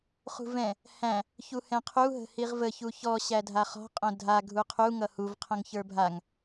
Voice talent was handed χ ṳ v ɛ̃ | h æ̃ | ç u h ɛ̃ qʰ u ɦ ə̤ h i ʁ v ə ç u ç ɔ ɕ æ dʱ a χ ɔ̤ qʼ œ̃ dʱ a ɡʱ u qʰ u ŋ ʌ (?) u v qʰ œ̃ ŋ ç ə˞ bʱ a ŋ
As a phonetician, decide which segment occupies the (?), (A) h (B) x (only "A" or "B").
A